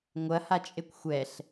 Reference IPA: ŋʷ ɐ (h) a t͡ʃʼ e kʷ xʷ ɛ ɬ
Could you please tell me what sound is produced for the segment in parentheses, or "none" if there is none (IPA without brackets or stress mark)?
h